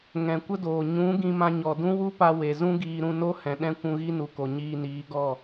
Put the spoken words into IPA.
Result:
ŋɛ̃˨kʷə˦doː˨ ɲũ˨˦ ɡĩ˧mã˧ɲɔ˨ dũ˦wu˦pa˧ we˨ zũ˦ɡiː˧ɾũ˧ no˦hɛ̃˨ ɗɛ̃˦ kʷũ˧ɣi˦nu˨ko˨ ɲiː˧niː˨˦ɡɔ˦˨

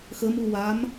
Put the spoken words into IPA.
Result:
xəmuwam

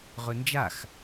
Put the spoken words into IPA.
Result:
ʁɵnd͡ʒax

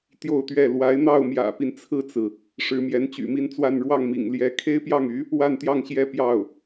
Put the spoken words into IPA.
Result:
t̪jo˥˧ʊ̯t̪ɥɛ˥˩ lwa˧˥ɪ̯n̪ɑ˥˩ʊ̯ mjä̰˨˩pi˦nt͡sʰɹ̩˥˩t͡sɹ̩˩ | ʂɻ̩˧˥mjɛ˧˥n t͡ɕy̰˨˩mi˥˧nt͡swa˥˧n ɻwɑ˥˩ŋmḭ˨˩ŋljɛ˧˥ kʰe˥ɪ̯pjɑ˥˩ŋy˧˥ | wa˥˧nt̪jɑ˥˩ŋɕjɛ˥ pjɑ˥˩ʊ̯

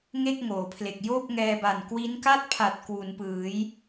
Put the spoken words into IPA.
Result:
ŋe˥˩k̚ŋoː˩˦pʰle˨˩k̚ joː˥˩p̚ŋɛː˧ba˨˩n kwi˦˥nka˥˩t̚pʰa˨˩t̚ kwu˩˦npɯː˩˦j

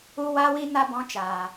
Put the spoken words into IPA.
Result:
u˦wa˦wi˦ na˧bɔ̃˨˦ t͡ʃaː˨

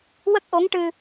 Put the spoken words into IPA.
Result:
wə˦˥k̚ʔo˧˥ŋ ʈɨ˧

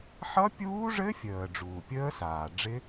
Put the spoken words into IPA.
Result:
ħʌ˦˥pʲuː˦˥ʐɘ˦˥fʲəː˩ ɖ͡ʐuː˩pʲəː˦˥saː˩ɖ͡ʐɪ˦˥

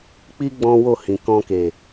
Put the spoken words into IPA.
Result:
k͡pi˦ ɡ͡bɔ̃˦wo˦˨hĩ˨ kɔ̃˧ke˨

